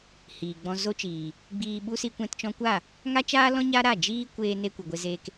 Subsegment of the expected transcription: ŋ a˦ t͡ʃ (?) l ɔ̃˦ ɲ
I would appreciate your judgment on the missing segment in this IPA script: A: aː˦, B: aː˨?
A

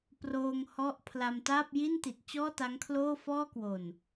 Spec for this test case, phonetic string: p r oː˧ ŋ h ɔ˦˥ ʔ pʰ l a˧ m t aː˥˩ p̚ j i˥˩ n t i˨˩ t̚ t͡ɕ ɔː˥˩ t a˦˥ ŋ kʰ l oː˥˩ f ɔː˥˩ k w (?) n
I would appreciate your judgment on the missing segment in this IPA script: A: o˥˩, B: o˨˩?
B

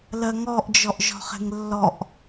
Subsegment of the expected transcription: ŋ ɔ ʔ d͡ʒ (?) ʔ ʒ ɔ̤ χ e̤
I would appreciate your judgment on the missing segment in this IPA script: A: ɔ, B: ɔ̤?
A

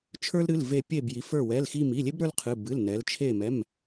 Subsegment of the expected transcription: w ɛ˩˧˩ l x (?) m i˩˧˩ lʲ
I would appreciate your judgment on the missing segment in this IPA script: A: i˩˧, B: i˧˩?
B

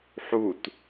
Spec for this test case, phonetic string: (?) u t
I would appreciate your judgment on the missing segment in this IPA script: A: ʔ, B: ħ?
B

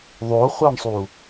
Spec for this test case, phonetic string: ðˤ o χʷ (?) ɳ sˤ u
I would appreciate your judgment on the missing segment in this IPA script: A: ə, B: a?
B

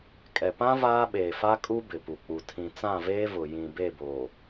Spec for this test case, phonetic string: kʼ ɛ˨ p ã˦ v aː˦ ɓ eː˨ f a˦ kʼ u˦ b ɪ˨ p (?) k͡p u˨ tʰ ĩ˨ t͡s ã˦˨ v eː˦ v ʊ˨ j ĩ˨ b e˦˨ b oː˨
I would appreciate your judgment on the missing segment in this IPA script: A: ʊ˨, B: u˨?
B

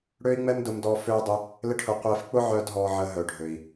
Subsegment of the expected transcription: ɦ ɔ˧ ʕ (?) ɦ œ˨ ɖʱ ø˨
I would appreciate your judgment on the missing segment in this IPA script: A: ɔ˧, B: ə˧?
B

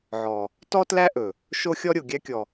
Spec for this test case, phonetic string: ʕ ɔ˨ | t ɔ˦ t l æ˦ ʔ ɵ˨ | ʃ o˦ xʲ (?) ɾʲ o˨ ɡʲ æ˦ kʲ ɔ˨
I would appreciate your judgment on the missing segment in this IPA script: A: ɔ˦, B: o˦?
A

